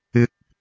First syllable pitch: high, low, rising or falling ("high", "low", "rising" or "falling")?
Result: rising